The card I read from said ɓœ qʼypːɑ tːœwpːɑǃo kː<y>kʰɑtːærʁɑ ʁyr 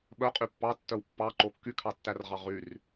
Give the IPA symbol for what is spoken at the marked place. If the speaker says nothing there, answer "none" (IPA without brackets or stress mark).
y